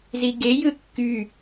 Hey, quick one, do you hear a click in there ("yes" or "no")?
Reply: no